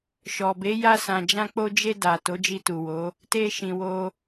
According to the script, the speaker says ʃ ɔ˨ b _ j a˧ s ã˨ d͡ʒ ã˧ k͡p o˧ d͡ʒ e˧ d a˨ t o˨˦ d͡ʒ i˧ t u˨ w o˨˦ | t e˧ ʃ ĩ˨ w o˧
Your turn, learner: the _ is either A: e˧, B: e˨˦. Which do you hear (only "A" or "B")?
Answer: B